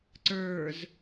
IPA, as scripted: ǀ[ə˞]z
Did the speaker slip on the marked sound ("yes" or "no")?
no